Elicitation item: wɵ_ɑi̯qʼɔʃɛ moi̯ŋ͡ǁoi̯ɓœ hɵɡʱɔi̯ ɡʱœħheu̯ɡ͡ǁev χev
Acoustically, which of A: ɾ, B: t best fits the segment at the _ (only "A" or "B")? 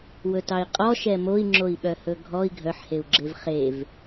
B